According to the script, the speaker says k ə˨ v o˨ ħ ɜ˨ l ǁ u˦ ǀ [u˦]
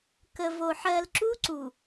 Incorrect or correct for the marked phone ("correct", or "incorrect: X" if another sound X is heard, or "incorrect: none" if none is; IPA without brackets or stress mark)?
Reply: incorrect: u˨